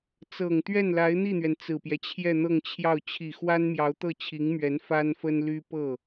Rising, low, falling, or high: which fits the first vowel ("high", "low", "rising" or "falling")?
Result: low